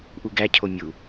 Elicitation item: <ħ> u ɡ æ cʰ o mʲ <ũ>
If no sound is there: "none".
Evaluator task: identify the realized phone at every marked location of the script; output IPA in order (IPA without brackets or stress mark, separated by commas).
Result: ʔ, u